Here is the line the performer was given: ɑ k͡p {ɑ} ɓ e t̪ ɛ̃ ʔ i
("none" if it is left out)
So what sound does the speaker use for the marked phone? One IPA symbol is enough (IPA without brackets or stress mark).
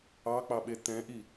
ɑ